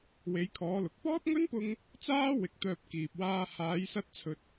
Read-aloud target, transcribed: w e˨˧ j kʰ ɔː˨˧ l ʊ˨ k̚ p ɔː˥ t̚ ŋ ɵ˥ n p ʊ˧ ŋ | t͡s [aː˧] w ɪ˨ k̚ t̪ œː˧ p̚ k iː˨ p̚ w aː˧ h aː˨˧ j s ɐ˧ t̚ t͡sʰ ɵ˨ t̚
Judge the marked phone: incorrect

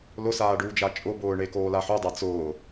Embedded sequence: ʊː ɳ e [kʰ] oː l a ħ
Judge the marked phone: incorrect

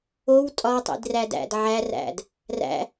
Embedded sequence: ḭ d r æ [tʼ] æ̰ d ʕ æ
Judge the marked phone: incorrect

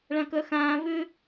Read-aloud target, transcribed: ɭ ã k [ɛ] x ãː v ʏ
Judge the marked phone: incorrect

